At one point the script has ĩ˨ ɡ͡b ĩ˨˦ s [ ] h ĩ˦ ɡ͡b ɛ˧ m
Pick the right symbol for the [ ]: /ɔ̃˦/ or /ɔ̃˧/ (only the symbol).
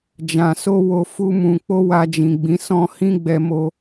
ɔ̃˦